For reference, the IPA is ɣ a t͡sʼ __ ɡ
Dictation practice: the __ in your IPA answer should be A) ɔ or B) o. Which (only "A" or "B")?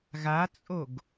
B